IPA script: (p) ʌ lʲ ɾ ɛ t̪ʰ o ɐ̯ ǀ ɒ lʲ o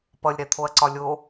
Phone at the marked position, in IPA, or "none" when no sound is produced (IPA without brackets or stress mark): p